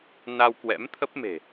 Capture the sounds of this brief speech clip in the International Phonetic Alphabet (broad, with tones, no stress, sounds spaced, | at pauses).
n a˧ w k w ɛ̰˧˥ m t̪ʰ ə˦˥ p̚ m e̤˨˩